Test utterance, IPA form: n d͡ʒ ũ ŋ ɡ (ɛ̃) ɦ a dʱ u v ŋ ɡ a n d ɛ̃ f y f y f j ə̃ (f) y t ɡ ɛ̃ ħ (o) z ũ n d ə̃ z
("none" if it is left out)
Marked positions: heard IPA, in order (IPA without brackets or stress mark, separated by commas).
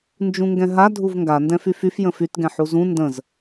ɛ̃, f, u